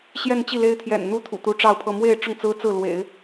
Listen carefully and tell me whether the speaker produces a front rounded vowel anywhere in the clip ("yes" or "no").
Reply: no